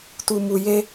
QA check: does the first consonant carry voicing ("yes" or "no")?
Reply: no